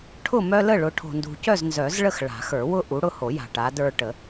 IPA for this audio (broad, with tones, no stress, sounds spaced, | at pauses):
ʈʰ ʊ˥˨ m œ˦ l ə˥˨ ɭ ʊ˨˦ ʈʰ o̤˨ n d ṳ˨ c œ˥˨ z n z œ˨˩˦ z ɭ ə˥˨ x ɭ a̤˨˩˦ x ə˞˨˩˦ w ʊ˦ ʔ u˨˦ ɽ ʊ˥˨ h o˨˩˦ j a̤˨ ʈ a˨˦ d ə˞˦ ʈ ə˨˩˦